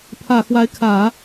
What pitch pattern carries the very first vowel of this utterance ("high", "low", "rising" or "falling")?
low